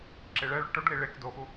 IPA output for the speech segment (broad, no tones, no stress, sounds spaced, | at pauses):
ǁ e ɭ ɛ ɭ o ʈ o ɖ l i ɭ e k d o x u